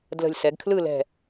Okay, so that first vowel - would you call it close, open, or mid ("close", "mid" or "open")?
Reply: mid